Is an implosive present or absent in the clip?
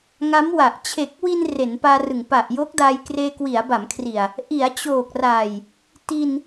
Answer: absent